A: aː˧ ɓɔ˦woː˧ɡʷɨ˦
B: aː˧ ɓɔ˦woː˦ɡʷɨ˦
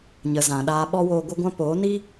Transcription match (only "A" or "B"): A